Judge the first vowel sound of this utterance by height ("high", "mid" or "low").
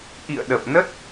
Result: high